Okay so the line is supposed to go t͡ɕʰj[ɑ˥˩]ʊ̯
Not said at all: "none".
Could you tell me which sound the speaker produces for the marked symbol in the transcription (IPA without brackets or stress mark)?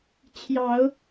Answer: ɑ˨˩˦